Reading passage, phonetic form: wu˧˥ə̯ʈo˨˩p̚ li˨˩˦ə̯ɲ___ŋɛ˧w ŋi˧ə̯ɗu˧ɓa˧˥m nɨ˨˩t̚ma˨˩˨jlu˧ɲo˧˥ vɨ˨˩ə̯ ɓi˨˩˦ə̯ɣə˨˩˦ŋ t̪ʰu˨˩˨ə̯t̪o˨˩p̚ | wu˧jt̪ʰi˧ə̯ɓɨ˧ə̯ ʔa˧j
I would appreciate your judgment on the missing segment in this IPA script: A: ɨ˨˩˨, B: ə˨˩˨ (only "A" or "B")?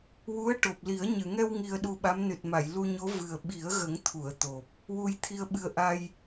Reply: A